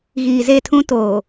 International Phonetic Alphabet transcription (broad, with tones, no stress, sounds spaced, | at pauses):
ɣ iː˨ z e˦˨ tʰ ũ˦ t oː˨